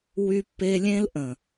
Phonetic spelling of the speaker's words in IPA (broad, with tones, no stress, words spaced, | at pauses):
wy˦pːe˦lʲẽ˦l ʔə̃˨